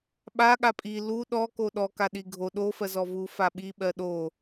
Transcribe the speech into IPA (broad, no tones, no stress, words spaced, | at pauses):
ɓa ɠapʼi lu ɗɔ koɗɔ kaɗiɡʱo ɗo fɜzɔvu faɓi ɓɜɗo